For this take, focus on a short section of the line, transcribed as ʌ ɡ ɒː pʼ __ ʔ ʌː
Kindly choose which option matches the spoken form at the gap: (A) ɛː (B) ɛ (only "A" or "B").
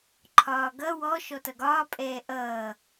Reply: A